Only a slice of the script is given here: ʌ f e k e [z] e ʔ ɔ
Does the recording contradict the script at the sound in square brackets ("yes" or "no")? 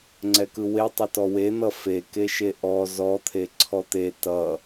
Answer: yes